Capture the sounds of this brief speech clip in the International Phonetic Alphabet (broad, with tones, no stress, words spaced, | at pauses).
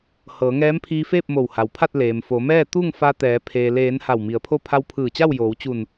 hɤː˩˧ŋɛː˧˥mpʰiː˧feː˥˨p̚ mo˧˩wha˩wpʰa˥˨t̚ leː˩mfo˩˧mɛː˥˨ t̪u˥˨ŋ fa˧t̪ɛː˩˧ pʰeː˩leː˩˧n ha˧˩wmi˩˧ə̯pʰo˥˨ pʰa˧wpʰɯː˧˩t͡ɕa˥˨w joː˩˧wt͡ɕu˧˩n